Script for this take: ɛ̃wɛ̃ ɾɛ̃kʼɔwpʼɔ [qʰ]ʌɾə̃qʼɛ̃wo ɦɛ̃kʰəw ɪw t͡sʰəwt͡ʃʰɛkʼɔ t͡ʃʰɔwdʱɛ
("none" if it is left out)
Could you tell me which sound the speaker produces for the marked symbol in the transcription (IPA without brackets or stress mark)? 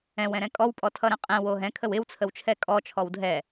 tʰ